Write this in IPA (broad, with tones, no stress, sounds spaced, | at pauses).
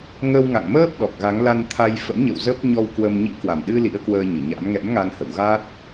ŋ ə˧ w ŋ a̰˧˨ ŋ m əː˦˥ p̚ ɗ ɔ˨˩ k̚ ɣ a˨˦ ŋ l a˧ n t̪ʰ a˧ j f ə̰˧˥ m ɲ ə̰˧˨ w z ə˦˥ p̚ ɲ ɔ˧ w k w ə˧ m ɲ ḭ˧˥ k w a˨˩ m ɗ ɨ˧ l ḭ˧˥ ə̯ k w əː˧ ɲ ɨ˧˩ ɲ a̰˧˥ m ŋ ɛ̰˧˥ m ŋ a˧ n h ə̰˧˨ w ɣ a˦˥ t̚